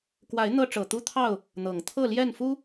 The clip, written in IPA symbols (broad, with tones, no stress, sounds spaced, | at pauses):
k w a˨˦ ɪ̯ n̪ ɤ˦ ʈ͡ʂ ɤ˨˩ t̪ u˦ t̪ʰ ɑ˥˨ ʊ̯ | n̪ ɤ˨˩ ŋ t̪ʰ ɤ˥˨ l j ɛ˥˨ n f u˦